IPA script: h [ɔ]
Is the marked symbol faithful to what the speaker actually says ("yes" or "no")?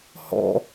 no